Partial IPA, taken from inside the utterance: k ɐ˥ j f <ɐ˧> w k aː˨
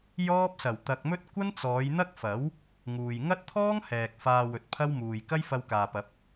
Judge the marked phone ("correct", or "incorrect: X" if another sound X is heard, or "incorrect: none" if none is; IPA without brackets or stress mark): correct